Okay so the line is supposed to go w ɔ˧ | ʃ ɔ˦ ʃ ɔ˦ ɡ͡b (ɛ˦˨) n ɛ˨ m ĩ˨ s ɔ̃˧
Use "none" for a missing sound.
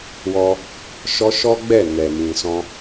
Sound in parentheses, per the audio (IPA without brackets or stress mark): ɛ˦˨